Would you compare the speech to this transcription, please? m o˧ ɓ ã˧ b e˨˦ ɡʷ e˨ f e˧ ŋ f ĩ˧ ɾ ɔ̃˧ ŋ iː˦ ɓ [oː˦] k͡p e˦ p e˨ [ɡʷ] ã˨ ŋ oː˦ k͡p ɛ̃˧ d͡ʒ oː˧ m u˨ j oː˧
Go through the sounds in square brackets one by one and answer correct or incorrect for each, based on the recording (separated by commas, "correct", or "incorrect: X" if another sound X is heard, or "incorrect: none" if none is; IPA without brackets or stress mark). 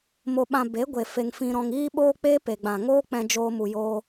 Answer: correct, incorrect: ɡ͡b